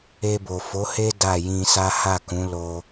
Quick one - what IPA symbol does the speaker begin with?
e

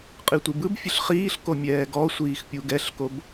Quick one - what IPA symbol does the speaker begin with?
qʼ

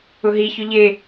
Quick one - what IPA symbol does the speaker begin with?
ʊ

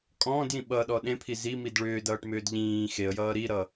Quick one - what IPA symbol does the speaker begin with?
kʼ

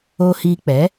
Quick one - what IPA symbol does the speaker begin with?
oː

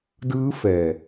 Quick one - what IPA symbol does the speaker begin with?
d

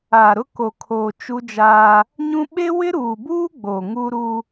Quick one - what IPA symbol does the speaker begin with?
aː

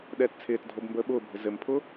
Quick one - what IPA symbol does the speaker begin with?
ɗ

